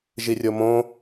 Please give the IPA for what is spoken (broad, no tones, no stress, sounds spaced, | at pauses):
ʒ i rʲ o m õ